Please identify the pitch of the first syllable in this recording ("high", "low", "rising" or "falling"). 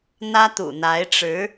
high